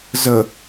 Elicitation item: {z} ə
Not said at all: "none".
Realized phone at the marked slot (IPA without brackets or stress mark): z